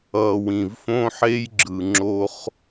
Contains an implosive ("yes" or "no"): no